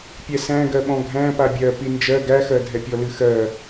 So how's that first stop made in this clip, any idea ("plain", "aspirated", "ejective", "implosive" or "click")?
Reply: plain